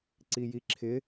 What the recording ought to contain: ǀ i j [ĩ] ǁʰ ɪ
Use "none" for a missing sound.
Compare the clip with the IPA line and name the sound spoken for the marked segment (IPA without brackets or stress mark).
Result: i